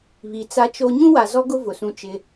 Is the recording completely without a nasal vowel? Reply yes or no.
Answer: no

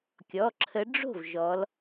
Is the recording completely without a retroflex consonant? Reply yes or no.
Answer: no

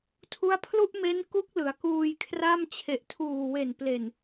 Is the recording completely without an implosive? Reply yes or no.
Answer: yes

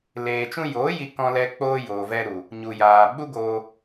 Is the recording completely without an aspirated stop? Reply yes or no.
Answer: yes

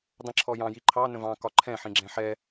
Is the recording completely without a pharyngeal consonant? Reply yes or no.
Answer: no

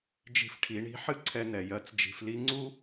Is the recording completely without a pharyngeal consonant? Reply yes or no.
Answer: no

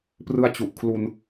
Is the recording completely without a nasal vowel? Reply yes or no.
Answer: yes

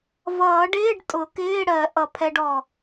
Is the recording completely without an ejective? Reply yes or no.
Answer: no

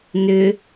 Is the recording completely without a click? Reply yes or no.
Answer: yes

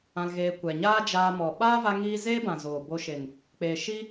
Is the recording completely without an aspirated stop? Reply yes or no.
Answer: yes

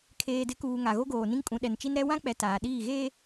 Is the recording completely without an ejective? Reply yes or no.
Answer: no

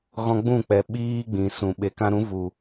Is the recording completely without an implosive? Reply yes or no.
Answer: no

